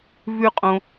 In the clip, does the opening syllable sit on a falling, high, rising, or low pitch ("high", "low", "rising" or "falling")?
high